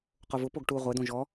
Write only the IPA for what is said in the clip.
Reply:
q o v ʊ p o ɡ ʈ u ʁʷ ɛ d õ ʒ ɔ

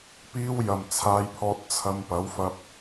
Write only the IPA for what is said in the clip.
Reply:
p iː˧ w j ɐ˨˩ m t͡sʰ aː˧ j pʰ ɔː˧ t̚ t͡sʰ ɐ˧ m p ɐ˨˥ w f ɐ˧ p̚

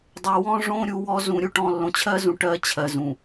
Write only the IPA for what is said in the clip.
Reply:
dˤ o˨ w ɔ̃˦ ʐ õ˦ ɾʲ u˨˦ w ɔ˦ z ũ˨ ɾʲ u˦ ʈ ɔ̃˨ lː õ˨ t͡ɕʰ ɜ˦ z ũ˨ ʈ ɜ˦ t͡ɕʰ ɜ˨ z ũ˨

